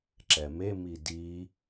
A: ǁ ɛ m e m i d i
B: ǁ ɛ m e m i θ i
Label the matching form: A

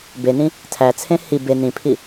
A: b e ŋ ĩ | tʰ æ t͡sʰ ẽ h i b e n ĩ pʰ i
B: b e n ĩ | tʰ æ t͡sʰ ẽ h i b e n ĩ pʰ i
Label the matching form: B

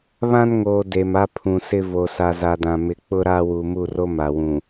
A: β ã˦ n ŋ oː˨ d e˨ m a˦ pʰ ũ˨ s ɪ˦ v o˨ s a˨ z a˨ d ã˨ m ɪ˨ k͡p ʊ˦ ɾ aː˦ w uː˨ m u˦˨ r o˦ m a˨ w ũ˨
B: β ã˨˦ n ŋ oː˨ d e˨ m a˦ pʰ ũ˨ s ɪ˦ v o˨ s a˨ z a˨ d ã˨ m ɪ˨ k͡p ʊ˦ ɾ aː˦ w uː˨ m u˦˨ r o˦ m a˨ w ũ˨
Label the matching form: A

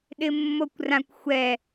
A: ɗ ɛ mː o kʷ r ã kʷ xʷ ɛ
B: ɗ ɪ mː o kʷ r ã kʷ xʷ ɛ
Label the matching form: B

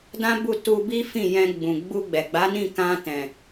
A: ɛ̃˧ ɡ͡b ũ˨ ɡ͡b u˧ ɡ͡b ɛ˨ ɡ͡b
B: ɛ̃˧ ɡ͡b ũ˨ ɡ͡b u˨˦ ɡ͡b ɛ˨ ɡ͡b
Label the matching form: A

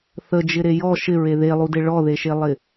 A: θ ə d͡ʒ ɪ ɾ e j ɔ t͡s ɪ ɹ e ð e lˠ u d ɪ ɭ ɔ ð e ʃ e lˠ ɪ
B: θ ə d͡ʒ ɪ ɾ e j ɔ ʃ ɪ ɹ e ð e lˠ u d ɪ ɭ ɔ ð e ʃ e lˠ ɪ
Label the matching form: B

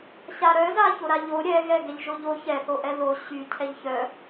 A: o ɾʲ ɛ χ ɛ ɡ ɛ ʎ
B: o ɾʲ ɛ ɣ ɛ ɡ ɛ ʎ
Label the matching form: B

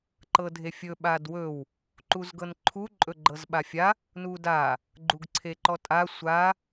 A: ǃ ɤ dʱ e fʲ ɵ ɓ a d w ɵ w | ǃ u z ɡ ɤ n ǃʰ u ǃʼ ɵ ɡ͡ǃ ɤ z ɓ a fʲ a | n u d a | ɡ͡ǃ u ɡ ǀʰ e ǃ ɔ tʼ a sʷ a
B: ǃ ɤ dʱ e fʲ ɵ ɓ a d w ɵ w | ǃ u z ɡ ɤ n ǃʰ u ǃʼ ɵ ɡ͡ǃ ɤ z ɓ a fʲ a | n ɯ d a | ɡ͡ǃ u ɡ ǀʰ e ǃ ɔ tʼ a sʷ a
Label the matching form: A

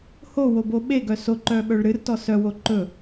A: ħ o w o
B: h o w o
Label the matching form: B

